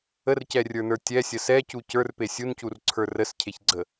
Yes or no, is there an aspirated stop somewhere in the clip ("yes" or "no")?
yes